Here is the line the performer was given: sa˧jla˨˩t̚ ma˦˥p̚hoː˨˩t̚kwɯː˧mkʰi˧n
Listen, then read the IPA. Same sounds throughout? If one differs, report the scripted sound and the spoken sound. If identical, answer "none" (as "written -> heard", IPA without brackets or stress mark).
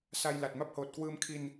none